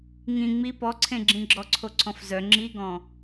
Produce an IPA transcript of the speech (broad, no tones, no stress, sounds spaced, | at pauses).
ŋ ĩ ŋ͡m i p ɔ ǀʰ ẽ ɡ͡ǁ ĩ ɡ͡ǁ ɔ ǀʰ o ǀʰ ɔ̃ f z œ ŋ͡ǁ i ɡ ɔ̃